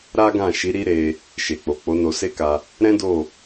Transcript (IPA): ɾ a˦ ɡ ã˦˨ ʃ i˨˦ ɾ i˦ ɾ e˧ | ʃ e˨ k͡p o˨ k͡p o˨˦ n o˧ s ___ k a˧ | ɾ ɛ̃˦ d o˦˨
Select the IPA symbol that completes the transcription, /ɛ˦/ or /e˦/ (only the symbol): e˦